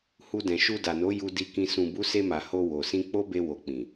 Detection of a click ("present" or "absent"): absent